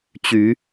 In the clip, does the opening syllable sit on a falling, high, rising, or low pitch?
rising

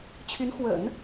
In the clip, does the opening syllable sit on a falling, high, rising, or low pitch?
rising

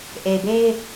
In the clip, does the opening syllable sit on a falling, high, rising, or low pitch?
low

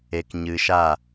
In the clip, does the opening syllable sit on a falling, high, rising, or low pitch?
low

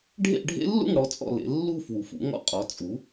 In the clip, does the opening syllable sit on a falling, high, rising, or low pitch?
falling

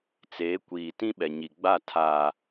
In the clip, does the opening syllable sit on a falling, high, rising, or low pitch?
rising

